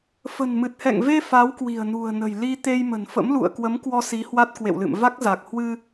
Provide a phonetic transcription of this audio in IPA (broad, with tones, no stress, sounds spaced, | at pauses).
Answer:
f ə̤˨˩ n m ɨ˨˩ t̚ h ɛ̰˧˨ ŋ v e˧ f a˨˦ w k w i̤˨˩ ə̯ n ṳ˨˩ ə̯ n ə̤˨˩ j l i˧ t̪ e˧ j m ə̤˨˩ n f ə̰˧˥ m l ṵ˧˨ ə̯ k w ə˨˦ m k w ɔ˧ s i˨˦ h w a˦˥ t̚ k w ḛ˧˨ w l ɨ̰˧˨ m v a˦˥ k̚ z a˨˩ k̚ h w ɨ˧